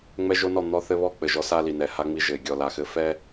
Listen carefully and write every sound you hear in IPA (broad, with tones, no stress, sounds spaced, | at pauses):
ŋ͡m ɛ˦ ʒ o˦ n ɔ˦˨ n̪ ɔ˦ θ ɘ˦ β ɔ˦ k͡p ɘ˨ ʒ ɔ˦ s a˦ l i˨ n ɛ˨ h a˦ ŋ͡m i˦ ʒ ɘ˨ ɪ̯ ɡʲ ɔ˨ l a˨ x ɘ˦ f ɛ˦